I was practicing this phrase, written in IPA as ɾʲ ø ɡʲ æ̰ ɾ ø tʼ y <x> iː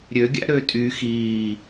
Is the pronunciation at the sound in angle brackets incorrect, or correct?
correct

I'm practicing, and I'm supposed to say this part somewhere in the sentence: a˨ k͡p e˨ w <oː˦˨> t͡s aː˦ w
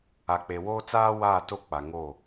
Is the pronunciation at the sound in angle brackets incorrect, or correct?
incorrect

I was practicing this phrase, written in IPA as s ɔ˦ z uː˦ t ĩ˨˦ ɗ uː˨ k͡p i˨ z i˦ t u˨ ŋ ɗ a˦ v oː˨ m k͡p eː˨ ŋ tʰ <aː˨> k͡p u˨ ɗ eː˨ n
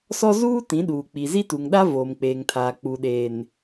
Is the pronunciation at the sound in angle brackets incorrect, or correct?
correct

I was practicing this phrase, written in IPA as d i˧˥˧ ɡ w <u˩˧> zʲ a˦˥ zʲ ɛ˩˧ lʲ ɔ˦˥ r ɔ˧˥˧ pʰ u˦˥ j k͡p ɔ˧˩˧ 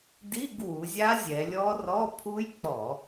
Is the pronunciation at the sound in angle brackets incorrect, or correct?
correct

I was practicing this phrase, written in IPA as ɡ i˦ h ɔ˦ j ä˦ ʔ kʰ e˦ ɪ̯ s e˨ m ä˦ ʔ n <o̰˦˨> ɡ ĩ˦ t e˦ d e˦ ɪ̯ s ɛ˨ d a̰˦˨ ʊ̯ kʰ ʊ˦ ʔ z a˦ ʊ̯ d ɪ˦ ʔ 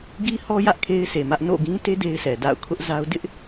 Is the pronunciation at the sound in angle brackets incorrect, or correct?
correct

